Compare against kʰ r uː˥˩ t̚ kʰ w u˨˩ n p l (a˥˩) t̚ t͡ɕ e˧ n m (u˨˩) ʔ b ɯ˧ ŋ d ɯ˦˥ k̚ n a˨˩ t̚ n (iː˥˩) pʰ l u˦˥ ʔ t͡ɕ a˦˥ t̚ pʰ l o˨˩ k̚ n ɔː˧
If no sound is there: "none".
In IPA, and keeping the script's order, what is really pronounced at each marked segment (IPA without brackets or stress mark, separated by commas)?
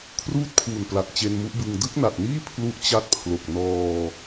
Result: a˨˩, u˦˥, iː˥˩